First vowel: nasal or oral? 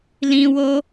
nasal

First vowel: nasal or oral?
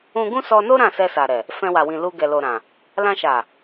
nasal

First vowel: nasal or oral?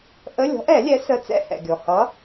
oral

